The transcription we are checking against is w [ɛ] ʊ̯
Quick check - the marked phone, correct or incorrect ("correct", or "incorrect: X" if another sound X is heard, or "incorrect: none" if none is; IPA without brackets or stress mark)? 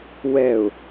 correct